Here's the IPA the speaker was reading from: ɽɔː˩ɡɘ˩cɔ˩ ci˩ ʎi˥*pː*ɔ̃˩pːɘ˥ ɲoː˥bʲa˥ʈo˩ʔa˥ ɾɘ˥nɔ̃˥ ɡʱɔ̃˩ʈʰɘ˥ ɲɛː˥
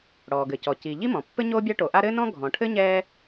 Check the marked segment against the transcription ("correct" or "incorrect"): incorrect